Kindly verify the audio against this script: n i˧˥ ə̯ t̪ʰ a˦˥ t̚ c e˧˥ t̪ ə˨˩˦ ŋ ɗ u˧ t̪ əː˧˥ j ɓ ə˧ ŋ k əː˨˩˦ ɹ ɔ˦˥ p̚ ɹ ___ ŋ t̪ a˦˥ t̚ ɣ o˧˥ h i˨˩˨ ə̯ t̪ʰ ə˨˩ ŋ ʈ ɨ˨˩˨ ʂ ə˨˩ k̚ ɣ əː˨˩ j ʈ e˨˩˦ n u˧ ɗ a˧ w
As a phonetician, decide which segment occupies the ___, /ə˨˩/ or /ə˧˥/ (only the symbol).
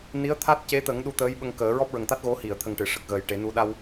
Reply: ə˨˩